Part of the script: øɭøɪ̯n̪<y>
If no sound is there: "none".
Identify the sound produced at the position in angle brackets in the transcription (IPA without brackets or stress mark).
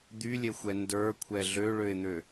ø